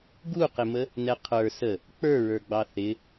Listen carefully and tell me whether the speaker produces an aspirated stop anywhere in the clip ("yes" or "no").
yes